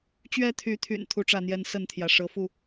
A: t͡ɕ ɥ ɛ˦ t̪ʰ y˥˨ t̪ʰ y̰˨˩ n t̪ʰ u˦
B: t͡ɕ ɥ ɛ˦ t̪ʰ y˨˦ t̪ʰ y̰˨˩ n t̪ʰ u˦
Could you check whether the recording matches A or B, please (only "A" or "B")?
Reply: B